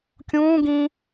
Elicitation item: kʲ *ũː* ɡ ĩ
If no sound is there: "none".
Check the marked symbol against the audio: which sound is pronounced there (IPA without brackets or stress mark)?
ũː